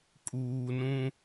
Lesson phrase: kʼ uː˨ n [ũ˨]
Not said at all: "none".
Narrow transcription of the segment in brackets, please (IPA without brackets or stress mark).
ũ˦